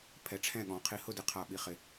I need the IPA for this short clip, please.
pʰ ɛ˧ ʈ͡ʂʰ ɛ̃˥˧ ɠ ɔ̃˨˥ qʰ i˧ h ʊ˥˧ d ɪ˧ qʰ a˧ ɓ i˨˥ χ ɪ˧

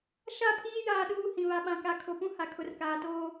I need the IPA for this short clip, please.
ʃ a˦˨ pʰ iː˦ j aː˦ ɗ uː˦ h ĩ˨ β a˨ ɓ ã˨ k a˨ kʰ o˨ p ũ˦ h a˨ kʰ ʊ˨ r k aː˨ t oː˦

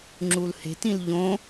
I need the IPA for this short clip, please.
ŋ͡ǁ u l h e̤ t ĩ l ʎ õ

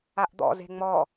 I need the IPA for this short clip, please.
a ʔ d̪ ɔ̰ z e̤ ŋ͡m ɔ

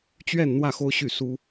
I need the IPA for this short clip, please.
t͡ɕ ɥ ɛ˥˧ n n̪ w ä˥˩ x o˥ ʊ̯ ɕ y˥˩ s u˥

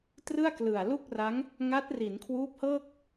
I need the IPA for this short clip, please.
t r ɯ˥˩ a̯ k l ɯ˨˩ a̯ l u˥˩ k̚ r a˦˥ ŋ | ŋ a˦˥ t̚ r i˩˦ n kʰ w uː˦˥ p̚ h ɤː˥˩ k̚

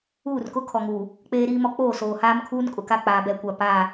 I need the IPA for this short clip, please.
uː˦˨ r k ʊ˦ kʰ ɔ˨ ŋ uː˨ | k͡p eː˦ ɾ iː˦ m ɔ˦ k͡p oː˦˨ s oː˨ h aː˦ m kʰ uː˦ n kʼ ʊ˨ k a˦ k͡p aː˨ b ɛ˦˨ kʷ a˦˨ p aː˦˨

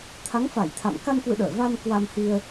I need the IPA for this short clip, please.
t̪ʰ a˨˦ ŋ f a˧˩ j t̪ʰ a̰˧˨ m k a˧ n k w ɨ̰˧˨ ɗ əː˧˩ v a˧ n k w a˧ m h i˧ ə̯

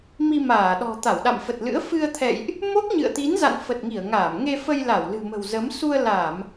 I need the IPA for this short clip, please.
m i˧ m aː˧˩ ɗ ɔ̤˨˩ t̪ a˧˩ w ɗ a̰˧˨ m f ə˨˩ t̚ l ɨ̰˧˥ ə̯ f ɨ˧ ə̯ t̪ʰ ɛ̰˧˨ j ʔ | m o˦˥ k̚ ɲ ɨ̰˧˨ ə̯ t̪ i˨˦ n z a̰˧˨ n f ə˨˩ t̚ ŋ i˧˩ ə̯ ŋ aː˧˩ m ŋ e˧ f ə˧ j l a˧˩ w l ɨ̤˨˩ m ə̤˨˩ w z ə˨˦ m s u˧ ə̯ l a˧˩˨ m

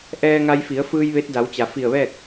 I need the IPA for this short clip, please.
ʔ ɛː˧ ŋ a˧ j f i˩˧ ə̯ f ɯː˧ j ʋ e˧˥ t̚ d a˩˧ w t͡ɕ a˩ f i˧˩ ə̯ ʋ ɛː˥˨ k̚

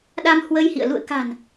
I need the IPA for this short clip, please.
ɗ a˧ m h w ə˧ j h ḭ˧˨ ə̯ l ṵ˧˨ ə̯ k a̤˨˩ n

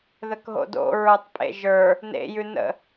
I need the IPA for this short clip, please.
ð ə k ɦ o̰ d o̰ ɹ ə˞ tˤ pʼ ḛ ʒ ə˞ | n ḛ j ʉ n ə̰

